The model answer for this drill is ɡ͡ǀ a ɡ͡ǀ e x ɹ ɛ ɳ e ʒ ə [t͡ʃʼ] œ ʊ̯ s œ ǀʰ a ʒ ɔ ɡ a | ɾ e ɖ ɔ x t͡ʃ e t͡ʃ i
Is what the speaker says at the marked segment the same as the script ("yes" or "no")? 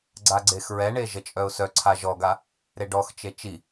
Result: yes